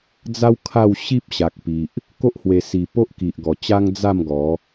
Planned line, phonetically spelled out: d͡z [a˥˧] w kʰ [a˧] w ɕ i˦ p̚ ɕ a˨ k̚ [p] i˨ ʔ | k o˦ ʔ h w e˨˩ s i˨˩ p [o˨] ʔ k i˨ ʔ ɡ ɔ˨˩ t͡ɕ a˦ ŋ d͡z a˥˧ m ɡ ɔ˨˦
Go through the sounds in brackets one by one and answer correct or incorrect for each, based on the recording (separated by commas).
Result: incorrect, incorrect, correct, incorrect